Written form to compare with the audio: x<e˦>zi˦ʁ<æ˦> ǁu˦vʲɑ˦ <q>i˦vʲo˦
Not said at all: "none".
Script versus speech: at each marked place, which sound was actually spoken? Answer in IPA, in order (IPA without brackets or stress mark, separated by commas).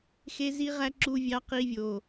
e˦, æ˦, q